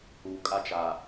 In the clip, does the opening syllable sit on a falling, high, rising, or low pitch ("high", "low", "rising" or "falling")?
low